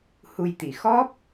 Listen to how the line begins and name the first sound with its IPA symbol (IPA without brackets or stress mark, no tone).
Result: h